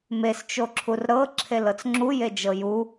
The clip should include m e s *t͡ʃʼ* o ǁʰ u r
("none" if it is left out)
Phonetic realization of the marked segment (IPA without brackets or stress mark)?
t͡ʃ